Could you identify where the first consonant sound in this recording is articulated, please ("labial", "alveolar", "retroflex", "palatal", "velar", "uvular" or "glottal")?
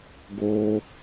velar